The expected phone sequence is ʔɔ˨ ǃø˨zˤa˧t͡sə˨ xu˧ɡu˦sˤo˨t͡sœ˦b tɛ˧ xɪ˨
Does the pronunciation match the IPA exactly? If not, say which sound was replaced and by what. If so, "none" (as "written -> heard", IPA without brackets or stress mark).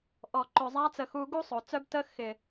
ɛ˧ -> ə˧